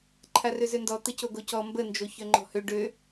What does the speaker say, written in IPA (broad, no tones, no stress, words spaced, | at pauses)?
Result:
ǃʰarøzøndɔ t̪əcoɡocɔ mbə nd͡ʒoçœŋ͡ǃɔ̤hø ɖø